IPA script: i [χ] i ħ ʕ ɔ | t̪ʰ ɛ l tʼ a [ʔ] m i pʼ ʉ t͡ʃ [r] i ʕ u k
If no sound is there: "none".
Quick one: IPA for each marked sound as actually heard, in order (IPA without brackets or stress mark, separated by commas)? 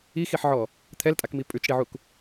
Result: x, k, ɽ